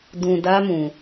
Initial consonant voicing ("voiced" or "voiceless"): voiced